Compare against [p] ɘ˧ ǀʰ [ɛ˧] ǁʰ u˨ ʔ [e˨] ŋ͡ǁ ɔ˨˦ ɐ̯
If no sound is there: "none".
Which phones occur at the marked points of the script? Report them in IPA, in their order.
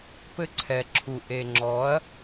p, ɛ˨, e˨

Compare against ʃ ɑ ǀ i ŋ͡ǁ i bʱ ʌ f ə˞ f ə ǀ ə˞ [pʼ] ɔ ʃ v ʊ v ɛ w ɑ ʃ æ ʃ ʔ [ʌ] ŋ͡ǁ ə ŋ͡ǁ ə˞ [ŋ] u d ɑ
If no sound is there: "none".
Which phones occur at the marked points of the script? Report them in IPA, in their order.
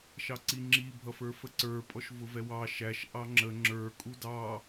pʼ, ɑ, kʼ

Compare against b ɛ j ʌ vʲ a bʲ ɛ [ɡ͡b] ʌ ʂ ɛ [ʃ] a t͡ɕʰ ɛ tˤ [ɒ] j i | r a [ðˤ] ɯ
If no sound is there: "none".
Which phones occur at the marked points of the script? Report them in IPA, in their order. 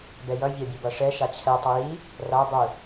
b, ʃ, ʌ, dˤ

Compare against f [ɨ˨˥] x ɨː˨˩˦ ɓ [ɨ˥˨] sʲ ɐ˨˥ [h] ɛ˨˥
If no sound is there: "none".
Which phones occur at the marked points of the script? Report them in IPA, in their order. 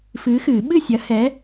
ɨː˨˥, ɨ˥˨, h

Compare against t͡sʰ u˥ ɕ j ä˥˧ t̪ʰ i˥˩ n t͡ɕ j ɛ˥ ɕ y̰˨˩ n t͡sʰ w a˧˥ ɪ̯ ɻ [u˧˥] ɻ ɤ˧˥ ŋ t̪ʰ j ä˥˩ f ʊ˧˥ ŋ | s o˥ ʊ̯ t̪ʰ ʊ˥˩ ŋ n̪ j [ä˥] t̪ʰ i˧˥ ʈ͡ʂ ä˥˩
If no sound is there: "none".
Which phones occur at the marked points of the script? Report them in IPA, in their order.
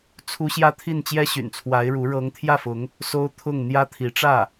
u˧˥, ä˥

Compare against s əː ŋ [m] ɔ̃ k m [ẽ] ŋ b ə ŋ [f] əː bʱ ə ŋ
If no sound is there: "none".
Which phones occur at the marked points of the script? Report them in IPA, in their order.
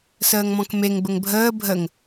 m, e, bʱ

